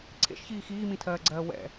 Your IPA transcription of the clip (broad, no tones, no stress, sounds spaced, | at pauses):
ǀʰ ḛ ʃ ç iː x iː m ĩ tʰ ɜː ɡ͡ǀ ɜː w ɛ̰